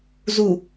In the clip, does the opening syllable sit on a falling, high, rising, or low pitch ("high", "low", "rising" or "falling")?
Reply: low